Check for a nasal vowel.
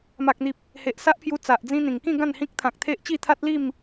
present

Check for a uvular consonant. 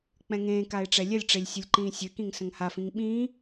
absent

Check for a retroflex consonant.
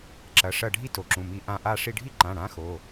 present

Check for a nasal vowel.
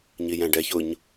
present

